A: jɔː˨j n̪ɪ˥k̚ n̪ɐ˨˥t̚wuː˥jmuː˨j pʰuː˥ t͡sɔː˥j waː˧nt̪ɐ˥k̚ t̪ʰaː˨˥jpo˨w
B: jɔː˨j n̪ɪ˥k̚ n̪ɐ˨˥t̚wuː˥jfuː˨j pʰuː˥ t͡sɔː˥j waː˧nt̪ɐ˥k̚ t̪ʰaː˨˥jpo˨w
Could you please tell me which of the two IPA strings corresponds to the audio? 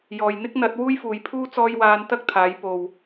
B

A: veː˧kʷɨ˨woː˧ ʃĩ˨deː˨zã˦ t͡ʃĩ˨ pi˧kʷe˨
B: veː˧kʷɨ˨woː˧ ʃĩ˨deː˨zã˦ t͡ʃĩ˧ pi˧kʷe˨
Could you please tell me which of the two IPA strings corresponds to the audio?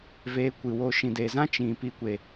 A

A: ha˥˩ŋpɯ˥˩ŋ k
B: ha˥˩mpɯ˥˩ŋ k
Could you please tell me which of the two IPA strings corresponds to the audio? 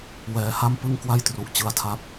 B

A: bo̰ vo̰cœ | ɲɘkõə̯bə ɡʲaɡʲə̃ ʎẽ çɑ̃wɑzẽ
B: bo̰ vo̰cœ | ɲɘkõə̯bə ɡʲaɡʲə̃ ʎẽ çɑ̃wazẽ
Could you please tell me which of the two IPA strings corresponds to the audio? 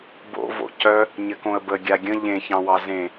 A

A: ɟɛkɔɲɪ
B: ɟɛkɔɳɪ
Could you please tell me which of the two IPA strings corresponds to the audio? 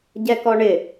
B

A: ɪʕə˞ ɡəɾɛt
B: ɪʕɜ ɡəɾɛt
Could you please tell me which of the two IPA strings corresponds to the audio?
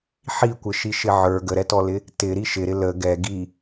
A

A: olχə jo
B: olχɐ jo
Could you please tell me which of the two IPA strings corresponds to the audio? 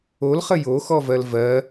A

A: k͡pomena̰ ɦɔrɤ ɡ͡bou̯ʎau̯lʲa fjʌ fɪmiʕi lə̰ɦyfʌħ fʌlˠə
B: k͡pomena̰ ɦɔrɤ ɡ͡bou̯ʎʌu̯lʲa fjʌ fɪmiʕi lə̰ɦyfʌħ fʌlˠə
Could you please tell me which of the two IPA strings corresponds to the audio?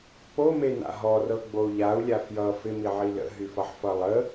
A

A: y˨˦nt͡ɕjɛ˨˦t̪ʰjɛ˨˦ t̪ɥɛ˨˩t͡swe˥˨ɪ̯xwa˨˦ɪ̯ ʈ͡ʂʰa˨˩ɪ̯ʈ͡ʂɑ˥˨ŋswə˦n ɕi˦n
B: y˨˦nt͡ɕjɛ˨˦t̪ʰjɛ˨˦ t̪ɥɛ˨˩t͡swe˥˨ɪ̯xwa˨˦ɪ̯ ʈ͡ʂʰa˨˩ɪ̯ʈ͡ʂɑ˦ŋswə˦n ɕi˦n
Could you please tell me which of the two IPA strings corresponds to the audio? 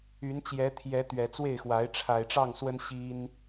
A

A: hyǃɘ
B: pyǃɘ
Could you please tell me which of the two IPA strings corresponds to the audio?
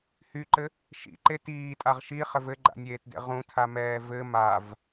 A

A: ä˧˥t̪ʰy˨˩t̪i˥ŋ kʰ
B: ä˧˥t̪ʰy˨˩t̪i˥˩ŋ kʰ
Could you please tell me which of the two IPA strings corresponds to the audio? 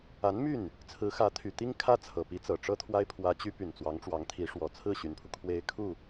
A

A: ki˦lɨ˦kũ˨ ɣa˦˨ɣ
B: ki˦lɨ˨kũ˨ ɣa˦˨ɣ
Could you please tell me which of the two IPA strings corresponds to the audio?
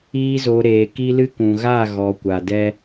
A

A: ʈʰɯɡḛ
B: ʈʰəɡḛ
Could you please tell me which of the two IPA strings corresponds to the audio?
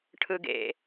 A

